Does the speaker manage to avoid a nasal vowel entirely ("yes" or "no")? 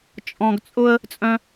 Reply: no